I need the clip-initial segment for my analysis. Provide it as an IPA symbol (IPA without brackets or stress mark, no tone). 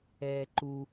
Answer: ɛː